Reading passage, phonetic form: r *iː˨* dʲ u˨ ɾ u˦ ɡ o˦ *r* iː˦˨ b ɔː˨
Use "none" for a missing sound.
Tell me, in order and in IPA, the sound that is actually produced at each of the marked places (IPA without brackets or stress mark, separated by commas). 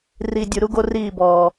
i˨, r